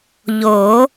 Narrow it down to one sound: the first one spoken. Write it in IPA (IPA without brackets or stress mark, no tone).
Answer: ʎ